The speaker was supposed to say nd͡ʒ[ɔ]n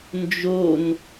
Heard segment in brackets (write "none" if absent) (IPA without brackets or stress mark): o